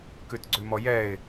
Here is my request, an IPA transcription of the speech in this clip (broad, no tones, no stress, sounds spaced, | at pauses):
k ʉ t ɡ͡ǀ ʉ m ɔ j ɛ ɪ̯